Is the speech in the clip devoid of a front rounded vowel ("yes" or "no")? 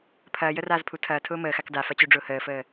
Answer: no